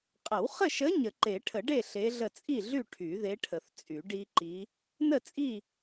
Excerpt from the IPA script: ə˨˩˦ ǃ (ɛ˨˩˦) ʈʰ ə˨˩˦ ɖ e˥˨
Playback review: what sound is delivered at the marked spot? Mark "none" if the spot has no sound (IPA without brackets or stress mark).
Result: e˨˩˦